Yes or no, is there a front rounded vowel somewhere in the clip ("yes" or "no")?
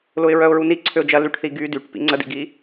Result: yes